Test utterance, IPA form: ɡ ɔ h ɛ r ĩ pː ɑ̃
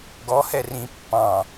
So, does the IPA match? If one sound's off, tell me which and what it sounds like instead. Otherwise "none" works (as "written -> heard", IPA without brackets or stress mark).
none